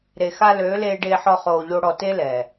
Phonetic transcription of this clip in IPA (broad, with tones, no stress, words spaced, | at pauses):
ɾe˨xa˧ løː˨˦leː˧ ɖeː˧ħɔ˧ χoː˧ʎo˦ɽɔ˧ te˦lɛː˨